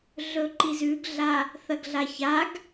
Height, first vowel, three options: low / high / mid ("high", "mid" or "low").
mid